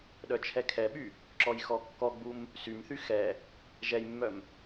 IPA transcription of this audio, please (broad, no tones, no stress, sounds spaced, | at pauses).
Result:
ɗ œ t͡ʃʰ ɛ kʰ ɛ ɓ y | ǁ ɔ j x ɔ kː ɔ ɡ͡b u m | s y m θ y x ɛ | ʒ ɛ j mː œ m